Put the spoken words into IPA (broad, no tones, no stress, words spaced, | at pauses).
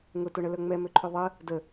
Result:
ŋʊtoɳə lœŋ͡mɛmøǃʰø ðˤə | də